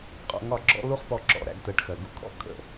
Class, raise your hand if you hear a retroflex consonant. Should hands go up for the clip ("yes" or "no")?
yes